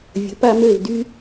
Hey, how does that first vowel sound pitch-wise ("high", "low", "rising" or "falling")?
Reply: rising